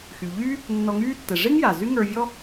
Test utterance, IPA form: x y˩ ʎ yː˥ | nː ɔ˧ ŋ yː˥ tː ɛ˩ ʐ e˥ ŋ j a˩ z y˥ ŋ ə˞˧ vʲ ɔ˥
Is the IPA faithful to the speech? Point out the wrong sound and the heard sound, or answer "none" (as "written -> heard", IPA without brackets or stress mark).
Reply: none